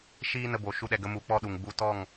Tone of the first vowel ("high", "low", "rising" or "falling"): high